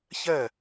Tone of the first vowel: falling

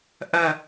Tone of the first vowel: low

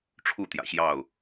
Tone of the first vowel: falling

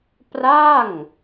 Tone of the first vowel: falling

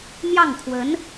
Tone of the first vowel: falling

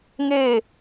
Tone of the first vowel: falling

